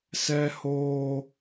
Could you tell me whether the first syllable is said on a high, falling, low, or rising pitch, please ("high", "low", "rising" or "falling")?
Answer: high